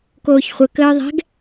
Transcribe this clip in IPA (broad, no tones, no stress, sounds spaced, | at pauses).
k oː ç χʷ ə k əː ðˤ ɛ̤ ɡ